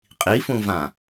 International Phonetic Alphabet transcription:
qʼ i f ũ v ã

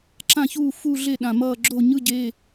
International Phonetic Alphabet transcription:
ǁ ã˦˨ ç uː˦˨ f u˦˨ ɮ e˦˨ ɗ ã˨˩ m ʌː˦˨ ɡ͡ǁ o˦˨ ɲ ɯ˧˥˧ ɟ e˧˥˧

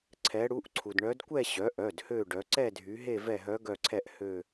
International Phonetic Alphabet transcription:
ǀʰ ɛ˩˧ ɽ u˩˧˩ ʔ ǀʰ u˩ d ɳ œ˩˧ d kʷ ɛ˦˨ ɕ œ˩˥ ʔ œ˩˧˩ d h ø˦˨ ɖ œ˩˧ ǀ ɛ˦˨ dʱ y˩˧ ɦ e˦˨ v ɛ˦˨ ɦ œ˧˥ ɡ œ˦˨ ǀʰ ɛ˦˨ ʔ h ø˦˨

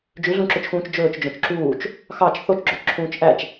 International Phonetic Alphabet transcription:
d͡ʒ ʉ ɮ ũ ǁ ø t͡ʃ x ũː t͡ʃ d͡ʒ ɵː t͡ʃ d͡ʒ õ t͡ʃ ǁ uː t͡ʃ | x ɑ t͡ʃ θ o t͡ʃ ɡ͡ǁ ø t͡ʃ ǁʰ ũː t͡ʃ ʔ æ t͡ʃ

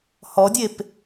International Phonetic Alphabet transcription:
h ɔ dʲ e p

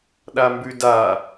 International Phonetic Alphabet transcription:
ɗ a m b ʉ d a

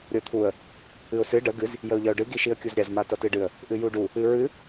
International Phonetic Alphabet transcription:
ɾʲ ɤ t̪ʰ u ə̯ | ɨ ʊ̯ s ɨ ɖ ə ɡ ɨ z | j ə ʊ̯ ʎ ʌ ʊ̯ ɖ ɨ ɡ i ʃ i ə̯ kʲ u z ɾʲ a z m a t ʌ t ɨ ɖ ɨ ə̯ | ʔ ɨ j u ɖ u | ɨ ɹ ɨ

